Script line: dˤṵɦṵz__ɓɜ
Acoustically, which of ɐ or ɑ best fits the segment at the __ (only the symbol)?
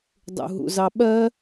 ɑ